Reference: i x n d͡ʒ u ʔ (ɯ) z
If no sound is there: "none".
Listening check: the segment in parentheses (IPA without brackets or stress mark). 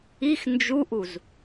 u